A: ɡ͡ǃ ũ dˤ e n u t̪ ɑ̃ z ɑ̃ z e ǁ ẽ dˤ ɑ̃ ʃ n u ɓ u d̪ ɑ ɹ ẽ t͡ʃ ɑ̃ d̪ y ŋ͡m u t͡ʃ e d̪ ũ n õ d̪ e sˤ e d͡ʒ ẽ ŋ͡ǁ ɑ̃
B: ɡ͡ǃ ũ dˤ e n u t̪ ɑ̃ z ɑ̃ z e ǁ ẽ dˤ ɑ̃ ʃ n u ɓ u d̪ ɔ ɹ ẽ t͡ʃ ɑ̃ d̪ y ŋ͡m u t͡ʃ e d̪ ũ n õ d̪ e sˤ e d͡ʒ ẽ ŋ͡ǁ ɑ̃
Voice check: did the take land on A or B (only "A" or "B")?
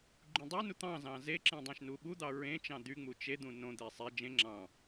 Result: A